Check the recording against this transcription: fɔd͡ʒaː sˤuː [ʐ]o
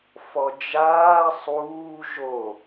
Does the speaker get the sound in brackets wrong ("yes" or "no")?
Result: yes